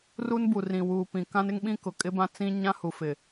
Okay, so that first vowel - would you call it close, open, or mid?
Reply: close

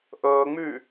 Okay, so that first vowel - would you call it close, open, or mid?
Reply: mid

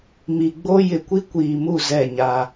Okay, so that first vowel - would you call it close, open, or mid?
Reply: close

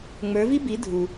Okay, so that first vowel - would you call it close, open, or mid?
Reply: mid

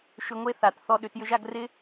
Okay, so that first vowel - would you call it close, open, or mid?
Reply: close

